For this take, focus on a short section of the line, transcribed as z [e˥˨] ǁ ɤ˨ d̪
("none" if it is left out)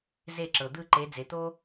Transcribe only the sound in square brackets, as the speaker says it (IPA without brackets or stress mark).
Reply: e˥˨